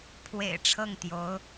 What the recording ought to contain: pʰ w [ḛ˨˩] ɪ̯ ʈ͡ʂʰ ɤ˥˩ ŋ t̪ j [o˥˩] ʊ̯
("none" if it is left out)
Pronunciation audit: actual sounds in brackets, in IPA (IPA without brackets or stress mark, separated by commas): ḛ˨˩, o˧˥